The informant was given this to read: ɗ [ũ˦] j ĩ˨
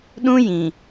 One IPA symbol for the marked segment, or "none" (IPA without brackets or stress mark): ũ˦